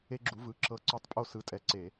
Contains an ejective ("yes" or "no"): yes